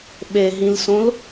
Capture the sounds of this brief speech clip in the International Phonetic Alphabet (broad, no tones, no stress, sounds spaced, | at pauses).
ɓ e ɦ ĩ l s õ l